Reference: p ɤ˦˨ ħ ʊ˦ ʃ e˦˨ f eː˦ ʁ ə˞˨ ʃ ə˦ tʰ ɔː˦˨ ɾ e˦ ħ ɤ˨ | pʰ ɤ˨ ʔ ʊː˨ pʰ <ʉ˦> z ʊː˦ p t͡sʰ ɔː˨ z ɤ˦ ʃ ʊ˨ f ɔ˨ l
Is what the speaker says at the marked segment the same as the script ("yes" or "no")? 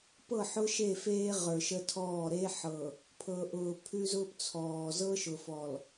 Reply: yes